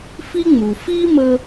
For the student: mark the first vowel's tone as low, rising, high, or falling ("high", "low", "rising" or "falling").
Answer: high